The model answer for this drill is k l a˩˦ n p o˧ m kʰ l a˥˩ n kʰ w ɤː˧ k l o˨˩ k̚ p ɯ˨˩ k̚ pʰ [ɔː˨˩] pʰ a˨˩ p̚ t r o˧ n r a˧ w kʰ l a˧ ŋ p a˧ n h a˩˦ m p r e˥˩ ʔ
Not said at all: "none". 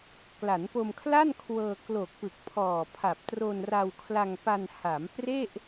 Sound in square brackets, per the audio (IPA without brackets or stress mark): ɔː˨˩